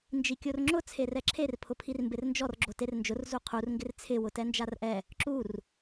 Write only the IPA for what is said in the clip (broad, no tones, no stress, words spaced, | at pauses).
nd͡ʒikʲorŋ͡ǁʊ t͡sʰerɛǁʰer pʰʊpʰirmbɪrnd͡ʒɔr ɡ͡ǁoternd͡ʒʊr zuqʰur ŋɡɪrt͡sʰɪ wʊtɛnd͡ʒarʔɛ | ǁur